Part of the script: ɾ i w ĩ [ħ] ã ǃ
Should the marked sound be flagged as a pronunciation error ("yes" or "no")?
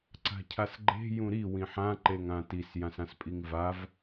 no